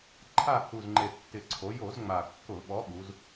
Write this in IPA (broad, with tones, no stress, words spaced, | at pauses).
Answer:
ǃʰa˦˨hu˨˩zŋ͡ǃe˨˩ tːɪ˨˩ǀʰo˩˧ jo˧˩˧z ŋ͡ma˨˩kːʊ˧˩˧ ɓɔ˨˥ ɓu˩˧z